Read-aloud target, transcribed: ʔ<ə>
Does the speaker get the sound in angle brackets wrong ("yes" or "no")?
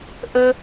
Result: no